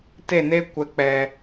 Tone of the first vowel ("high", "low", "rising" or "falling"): falling